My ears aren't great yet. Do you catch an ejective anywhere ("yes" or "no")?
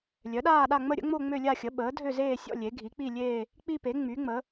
no